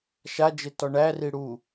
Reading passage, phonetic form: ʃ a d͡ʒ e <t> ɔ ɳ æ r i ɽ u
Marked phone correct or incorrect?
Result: correct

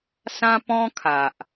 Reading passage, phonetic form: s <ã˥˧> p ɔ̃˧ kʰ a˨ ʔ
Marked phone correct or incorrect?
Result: incorrect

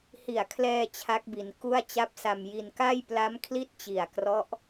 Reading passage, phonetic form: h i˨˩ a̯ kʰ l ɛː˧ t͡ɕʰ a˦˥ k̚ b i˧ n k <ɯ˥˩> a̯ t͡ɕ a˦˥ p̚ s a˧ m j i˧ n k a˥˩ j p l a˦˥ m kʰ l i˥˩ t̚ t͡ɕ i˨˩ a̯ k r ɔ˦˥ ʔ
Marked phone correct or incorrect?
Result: incorrect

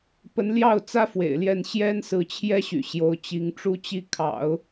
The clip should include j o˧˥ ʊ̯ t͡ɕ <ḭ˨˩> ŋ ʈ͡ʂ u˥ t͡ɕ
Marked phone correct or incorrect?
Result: incorrect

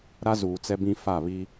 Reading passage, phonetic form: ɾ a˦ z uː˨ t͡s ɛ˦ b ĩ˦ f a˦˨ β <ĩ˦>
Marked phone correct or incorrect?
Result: incorrect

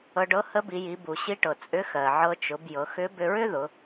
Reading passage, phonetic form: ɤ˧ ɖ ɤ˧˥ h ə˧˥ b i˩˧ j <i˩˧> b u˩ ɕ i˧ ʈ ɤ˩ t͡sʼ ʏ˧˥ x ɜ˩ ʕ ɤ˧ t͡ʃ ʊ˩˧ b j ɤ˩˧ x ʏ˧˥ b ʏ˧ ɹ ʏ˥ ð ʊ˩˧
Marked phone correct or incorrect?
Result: correct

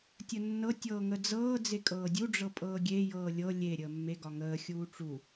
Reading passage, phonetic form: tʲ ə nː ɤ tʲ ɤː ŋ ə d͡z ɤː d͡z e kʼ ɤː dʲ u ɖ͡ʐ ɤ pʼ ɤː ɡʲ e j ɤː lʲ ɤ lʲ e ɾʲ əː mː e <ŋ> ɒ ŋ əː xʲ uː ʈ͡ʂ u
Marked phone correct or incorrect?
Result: incorrect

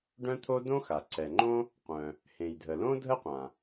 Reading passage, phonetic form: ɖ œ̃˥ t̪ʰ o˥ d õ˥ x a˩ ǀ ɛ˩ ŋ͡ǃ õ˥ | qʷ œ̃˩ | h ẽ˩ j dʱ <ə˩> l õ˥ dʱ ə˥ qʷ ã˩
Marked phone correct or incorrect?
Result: correct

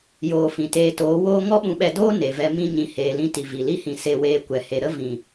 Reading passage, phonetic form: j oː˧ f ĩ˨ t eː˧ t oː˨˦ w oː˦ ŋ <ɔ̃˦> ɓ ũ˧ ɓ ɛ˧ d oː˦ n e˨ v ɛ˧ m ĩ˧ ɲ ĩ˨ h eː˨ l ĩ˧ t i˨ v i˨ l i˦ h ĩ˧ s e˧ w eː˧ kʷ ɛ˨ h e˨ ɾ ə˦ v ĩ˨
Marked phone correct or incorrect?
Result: incorrect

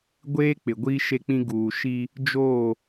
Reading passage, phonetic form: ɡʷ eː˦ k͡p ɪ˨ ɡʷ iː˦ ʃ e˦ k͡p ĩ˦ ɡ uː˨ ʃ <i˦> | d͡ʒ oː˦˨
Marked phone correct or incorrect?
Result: correct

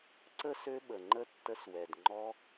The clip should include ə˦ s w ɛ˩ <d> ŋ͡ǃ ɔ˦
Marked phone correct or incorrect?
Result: correct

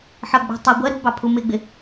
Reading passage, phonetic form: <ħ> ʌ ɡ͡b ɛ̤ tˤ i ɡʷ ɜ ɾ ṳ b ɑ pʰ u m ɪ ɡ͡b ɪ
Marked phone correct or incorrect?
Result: correct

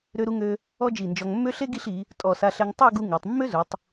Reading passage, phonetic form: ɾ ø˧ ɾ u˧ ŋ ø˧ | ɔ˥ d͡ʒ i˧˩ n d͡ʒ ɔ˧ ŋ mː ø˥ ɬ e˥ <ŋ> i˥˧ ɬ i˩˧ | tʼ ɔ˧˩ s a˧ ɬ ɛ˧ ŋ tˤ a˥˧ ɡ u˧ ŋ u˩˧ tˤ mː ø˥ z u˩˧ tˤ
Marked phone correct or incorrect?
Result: incorrect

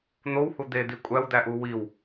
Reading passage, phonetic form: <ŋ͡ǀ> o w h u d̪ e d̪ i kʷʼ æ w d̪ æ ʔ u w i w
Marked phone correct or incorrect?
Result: incorrect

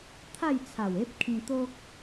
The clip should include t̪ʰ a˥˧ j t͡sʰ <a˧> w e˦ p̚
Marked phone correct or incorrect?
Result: incorrect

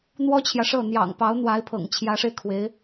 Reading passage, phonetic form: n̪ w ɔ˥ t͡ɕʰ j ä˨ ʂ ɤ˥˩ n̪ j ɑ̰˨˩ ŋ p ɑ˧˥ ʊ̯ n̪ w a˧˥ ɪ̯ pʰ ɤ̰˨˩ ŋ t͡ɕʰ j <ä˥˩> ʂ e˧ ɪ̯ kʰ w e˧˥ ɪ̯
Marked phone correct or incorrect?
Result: incorrect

